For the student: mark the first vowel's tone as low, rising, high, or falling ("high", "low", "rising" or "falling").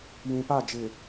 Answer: low